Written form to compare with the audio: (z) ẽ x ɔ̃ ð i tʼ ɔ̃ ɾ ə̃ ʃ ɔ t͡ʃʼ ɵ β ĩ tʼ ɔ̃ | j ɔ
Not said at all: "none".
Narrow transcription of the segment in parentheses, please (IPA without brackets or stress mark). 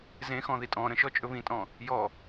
z